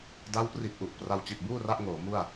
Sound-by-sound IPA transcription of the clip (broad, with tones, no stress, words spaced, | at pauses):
da˦˥wpri˨˩t̚ʔu˨˩ʔ pra˧wt͡ɕi˨˩t̚buː˥˩ra˦˥ʔ ŋoː˩˦mu˥˩a̯